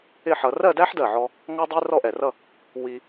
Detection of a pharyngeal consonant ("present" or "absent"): present